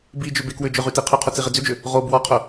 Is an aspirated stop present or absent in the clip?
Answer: present